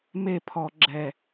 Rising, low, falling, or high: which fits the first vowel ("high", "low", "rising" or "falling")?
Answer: falling